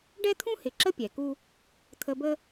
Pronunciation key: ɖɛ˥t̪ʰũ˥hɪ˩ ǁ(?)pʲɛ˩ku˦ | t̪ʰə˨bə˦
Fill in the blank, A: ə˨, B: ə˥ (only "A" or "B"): B